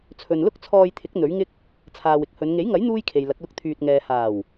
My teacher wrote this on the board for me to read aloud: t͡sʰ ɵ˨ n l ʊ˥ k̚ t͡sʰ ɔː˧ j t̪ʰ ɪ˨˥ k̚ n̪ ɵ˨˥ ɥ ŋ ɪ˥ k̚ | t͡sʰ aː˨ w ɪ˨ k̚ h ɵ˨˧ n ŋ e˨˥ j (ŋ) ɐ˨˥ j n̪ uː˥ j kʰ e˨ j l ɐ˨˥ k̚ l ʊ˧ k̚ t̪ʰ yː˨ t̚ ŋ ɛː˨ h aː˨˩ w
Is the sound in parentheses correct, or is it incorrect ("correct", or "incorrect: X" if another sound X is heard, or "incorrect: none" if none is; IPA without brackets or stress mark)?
correct